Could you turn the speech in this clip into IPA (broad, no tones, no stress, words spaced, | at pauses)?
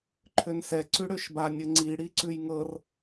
ǃʰønsɛ ǀʉɽøʃba nʲɘŋ͡ǀi ɽiǀʉjŋɤr